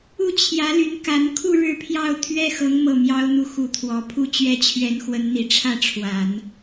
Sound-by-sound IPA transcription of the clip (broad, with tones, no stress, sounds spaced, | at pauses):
u˥˩ t͡ɕʰ j ä˧˥ l y˧˥ n k a˧˥ n kʰ u˥˧ ɻ ɻ̩˥˧ pʰ j ɑ˥˩ ʊ̯ t̪ʰ ɥ ɛ˥ x ɤ˧˥ ŋ m ɤ˥˩ m j ɑ˥ ʊ̯ n̪ u˥˩ x u˧˥ t̪ʰ w ɔ˨˩ pʰ u˥ t͡ɕ ɥ ɛ˥ t͡ɕʰ ɥ ɛ˧˥ n x w ə˧˥ n n̪ i˨˩ ʈ͡ʂʰ ä˥˩ ʈ͡ʂʰ w a˨˩˦ n